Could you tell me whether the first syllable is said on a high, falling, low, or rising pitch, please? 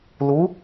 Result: rising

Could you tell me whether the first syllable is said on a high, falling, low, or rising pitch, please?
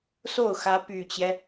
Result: falling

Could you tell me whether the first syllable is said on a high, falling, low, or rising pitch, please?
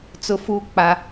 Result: low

